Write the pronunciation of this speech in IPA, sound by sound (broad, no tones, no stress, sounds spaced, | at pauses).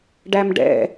ɖ æ m ɖ ɛ̰